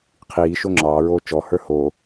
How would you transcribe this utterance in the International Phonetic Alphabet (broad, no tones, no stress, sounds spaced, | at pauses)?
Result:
qʰ iː ʃ o ŋ͡ǁ ɑː ɹ oː t͡ʃ ɔ h ə˞ h o